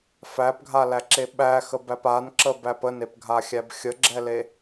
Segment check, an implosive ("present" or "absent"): present